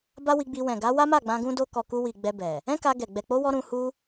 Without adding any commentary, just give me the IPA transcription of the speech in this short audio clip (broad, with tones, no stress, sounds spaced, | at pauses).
b a˦ w i˧ ɡ͡b i˧ w ɛ̃˨ ɡ a˨˦ w a˦ m a˦˨ ɡ͡b ã˧ ɡ ũ˦ d o˦ k ɔ˧ k u˧ w i˨ ɡ͡b ɛ˧ b ɛ˨ | ɛ̃˦ k a˧ ɡ ɛ˨ ɡ͡b ɛ˨ k͡p o˧ w ɔ˧ ɾ ũ˧ h u˦